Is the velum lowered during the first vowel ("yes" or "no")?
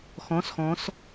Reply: yes